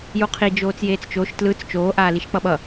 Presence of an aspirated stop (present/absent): present